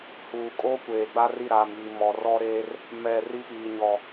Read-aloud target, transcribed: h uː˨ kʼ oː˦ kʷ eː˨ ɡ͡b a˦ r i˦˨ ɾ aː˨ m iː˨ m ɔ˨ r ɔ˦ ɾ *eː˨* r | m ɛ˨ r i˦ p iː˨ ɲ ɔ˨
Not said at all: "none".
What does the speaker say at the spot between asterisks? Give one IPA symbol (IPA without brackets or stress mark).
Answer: eː˦